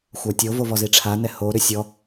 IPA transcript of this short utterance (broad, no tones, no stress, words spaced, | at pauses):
xʷatʲovo vɔziʈ͡ʂʰanɛ hoɾʏ sʲɔ